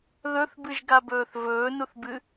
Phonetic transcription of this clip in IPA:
ðɵθbɨʒɡabɵːθ vɵːnuθbɨ

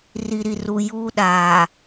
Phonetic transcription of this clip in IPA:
ri˨ɾi˨ru˨ juː˦ ɗaː˨

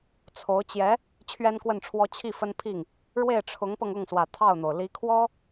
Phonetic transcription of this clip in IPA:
t͡sʰo˧˥ʊ̯ t͡ɕjɛ˧˥ | t͡ɕʰɥɛ˥nkwə˥˩nʈ͡ʂʰwɔ˥ t͡ɕʰi˥˩fə˥npʰi˥˩ŋ | ɻwe˥˩ɪ̯ʈ͡ʂʰʊ˧˥ŋpɤ˧ŋʊ˥˩ŋ swä˨˩ t̪ʰɑ˥˩ʊ̯n̪o˩ʊ̯ li˧˥kʰwɔ˥

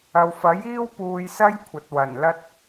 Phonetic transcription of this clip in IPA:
ɐ˨wfɐ˨˥jiː˥w puː˧jsɐ˥j kʷʰɐ˨t̚wɐ˨˩nlɐ˥t̚

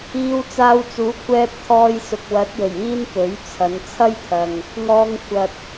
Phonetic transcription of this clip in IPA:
iː˧wt͡saː˧wt͡suː˨˥kʷʰɛː˧p̚ t̪ʰɔː˧jsʊ˨k̚wɐ˨˥t̚jɵ˨˩ɥ iː˥npɵ˨˥ɥt͡sʰɐ˨˧n t͡sʰɐ˥jt̪ʰɐ˨ŋ | ŋɔː˧ŋ kʷʰɐ˨t̚

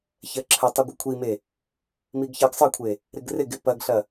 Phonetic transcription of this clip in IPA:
çɜǁʰətˤɯ ɡʷɐkʷʰime | miɡçɜɡsˤɜkʷʰe | ɾɪɡrɪɡɪ pɐɡɬɐ

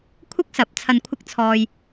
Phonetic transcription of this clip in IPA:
kʷʰɪ˥k̚sɐ˨˥p̚ t͡sʰɐ˨nkʷʰɪ˧k̚t͡sʰɔː˨j

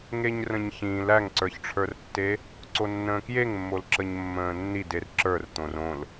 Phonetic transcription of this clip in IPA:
ŋeɲrə̃ɲçĩːl æŋǀə˞çʈ͡ʂʰə˞rtːe | ǀonːə̃ːkjeŋmːol ǁəɲmːə̃ːnːid erǁə˞rt̪õr õl

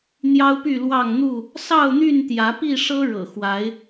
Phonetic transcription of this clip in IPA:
n̪jɑ˦ʊ̯py˥˨lwɑ˥˨ŋn̪u˥˨ | sɑ˥˨ʊ̯n̪y˥˨nt̪jä˨˦pi˥˨ ʂɤ˦ɻɤ̰˨˩ xwa˨˦ɪ̯

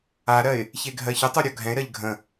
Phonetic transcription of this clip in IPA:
aɾɜɪ̯ | çeɡʱɜçətˤu ɾʲɔɡʱɛ̃ɪ̯ɾɜʎ ɡʱə̃

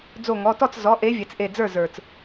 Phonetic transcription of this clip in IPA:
d͡zo˧˩ŋɔ˩˧˩tɔ˥˩t͡s zɔ˩˧˩ʔe˨˦vʲɛ˩t͡s ʔe˧˩d͡zə˞˥˩zə˞˩t͡s

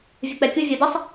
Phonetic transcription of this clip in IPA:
vʲʊk͡pɛkʲu vʲɔdəsˤ

